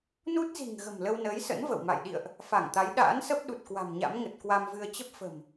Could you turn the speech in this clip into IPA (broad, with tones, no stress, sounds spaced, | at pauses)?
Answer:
n u˦˥ t̚ z i̤˨˩ ŋ ɣ ə̤˨˩ m l ə˧ w n əː˨˦ j s ə̰˧˥ n v ə̰˧˨ w m a̰˧˨ j ɗ ḭ˧˨ ə̯ ʔ | f a˧˩ ŋ t̪ a˨˦ j ɗ a̰ː˧˥ n s ə˦˥ p̚ ɗ u˨˩ t̚ k w a̤˨˩ m ɲ a̰˧˥ m ŋ ə˨˩ t̚ k w a˧ m v ɨ˧ ə̯ t͡ɕ ə˦˥ p̚ f ə̤˨˩ m